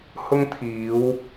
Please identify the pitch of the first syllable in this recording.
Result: high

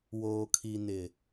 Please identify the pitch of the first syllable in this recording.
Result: low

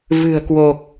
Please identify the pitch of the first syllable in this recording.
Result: low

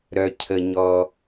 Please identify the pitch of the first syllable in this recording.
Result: low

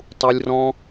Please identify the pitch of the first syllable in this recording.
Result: high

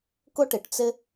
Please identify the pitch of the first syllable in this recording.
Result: high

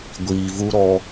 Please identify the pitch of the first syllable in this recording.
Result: low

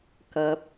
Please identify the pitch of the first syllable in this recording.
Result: rising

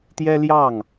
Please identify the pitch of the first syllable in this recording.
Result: high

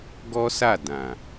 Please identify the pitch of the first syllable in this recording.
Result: high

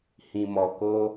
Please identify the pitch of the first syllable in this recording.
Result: low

